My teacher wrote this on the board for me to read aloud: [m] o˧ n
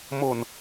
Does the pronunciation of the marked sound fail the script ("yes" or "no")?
no